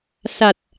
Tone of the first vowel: low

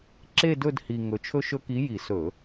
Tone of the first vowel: falling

